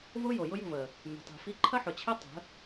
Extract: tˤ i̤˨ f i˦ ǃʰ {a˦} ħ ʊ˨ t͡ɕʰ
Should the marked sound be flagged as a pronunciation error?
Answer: yes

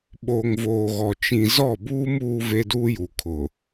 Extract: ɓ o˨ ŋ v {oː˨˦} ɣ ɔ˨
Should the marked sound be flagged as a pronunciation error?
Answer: yes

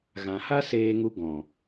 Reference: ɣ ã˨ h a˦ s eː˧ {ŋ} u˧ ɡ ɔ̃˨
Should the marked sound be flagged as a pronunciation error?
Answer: no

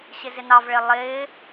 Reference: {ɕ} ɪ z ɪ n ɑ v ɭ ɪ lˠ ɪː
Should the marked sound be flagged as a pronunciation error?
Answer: no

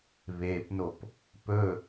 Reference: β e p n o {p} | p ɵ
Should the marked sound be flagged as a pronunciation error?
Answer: no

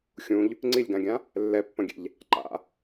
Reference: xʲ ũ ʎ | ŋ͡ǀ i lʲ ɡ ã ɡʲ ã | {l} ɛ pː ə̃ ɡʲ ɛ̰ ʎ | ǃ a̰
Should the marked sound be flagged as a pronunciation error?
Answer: yes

